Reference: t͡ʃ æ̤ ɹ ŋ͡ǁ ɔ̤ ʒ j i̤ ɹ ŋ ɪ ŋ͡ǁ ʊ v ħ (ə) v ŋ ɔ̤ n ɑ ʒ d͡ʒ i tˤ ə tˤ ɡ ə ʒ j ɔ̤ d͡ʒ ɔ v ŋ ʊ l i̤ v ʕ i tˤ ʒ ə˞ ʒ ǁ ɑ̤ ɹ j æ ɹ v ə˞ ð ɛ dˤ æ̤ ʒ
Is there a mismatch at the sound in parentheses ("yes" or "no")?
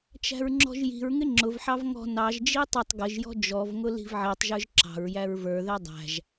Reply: yes